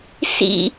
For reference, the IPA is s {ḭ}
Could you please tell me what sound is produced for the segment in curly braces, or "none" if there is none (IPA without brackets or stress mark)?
ḭ